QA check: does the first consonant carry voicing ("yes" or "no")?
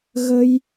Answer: yes